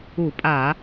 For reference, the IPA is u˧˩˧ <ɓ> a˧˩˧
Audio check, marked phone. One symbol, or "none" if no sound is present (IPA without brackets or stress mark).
pʼ